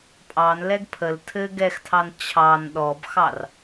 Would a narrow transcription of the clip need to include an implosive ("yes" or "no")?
yes